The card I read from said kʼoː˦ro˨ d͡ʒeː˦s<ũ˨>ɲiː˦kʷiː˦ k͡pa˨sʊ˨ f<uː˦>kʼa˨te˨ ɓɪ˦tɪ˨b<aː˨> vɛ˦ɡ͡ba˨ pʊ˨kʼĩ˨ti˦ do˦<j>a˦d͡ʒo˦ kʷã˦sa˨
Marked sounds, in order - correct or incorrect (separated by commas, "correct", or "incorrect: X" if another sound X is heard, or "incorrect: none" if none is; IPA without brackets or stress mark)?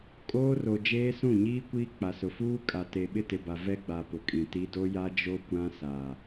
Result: incorrect: ũ˦˨, correct, incorrect: a˨, correct